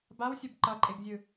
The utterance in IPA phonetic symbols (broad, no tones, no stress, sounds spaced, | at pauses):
b a w sʲ o b ǃ ʌ ǃʼ e ɡ zʲ ɯ